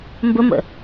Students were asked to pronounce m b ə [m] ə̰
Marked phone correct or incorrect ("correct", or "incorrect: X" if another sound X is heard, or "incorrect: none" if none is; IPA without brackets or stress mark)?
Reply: correct